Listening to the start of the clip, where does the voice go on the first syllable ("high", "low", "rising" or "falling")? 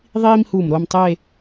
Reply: high